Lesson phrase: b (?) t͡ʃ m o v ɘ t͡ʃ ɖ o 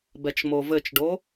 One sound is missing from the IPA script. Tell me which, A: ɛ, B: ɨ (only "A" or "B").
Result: A